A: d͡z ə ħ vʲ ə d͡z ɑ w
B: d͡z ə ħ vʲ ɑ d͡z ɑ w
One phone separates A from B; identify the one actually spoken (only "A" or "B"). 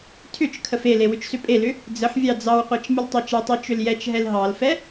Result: B